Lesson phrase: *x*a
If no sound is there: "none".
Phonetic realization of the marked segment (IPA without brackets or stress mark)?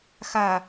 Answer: x